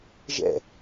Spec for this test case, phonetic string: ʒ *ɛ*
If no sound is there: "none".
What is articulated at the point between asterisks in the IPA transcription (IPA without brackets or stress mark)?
ɛ̰